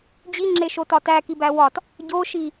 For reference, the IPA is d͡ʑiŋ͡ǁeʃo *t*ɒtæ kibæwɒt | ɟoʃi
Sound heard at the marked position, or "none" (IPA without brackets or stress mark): t